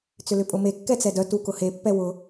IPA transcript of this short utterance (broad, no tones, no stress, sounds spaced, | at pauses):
t͡s ʏ l ʏ pʼ ʊ m e kː ɛ t͡s ɛ d œ t u k ʊ h e pː ɛ w ʊ